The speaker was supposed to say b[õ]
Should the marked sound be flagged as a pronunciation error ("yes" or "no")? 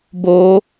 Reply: yes